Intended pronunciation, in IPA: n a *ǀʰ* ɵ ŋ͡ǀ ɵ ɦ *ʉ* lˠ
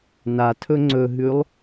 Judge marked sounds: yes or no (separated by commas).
no, yes